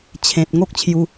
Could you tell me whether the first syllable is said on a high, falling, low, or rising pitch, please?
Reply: low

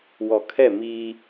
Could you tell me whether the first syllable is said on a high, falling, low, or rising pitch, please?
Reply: low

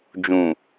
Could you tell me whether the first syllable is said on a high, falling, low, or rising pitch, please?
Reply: low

